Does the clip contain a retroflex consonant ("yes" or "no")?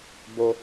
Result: no